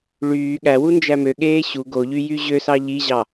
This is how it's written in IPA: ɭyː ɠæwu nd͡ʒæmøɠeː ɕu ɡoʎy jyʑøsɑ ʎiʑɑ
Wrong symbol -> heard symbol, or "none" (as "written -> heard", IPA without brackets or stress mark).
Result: none